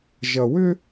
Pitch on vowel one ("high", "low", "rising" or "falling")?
low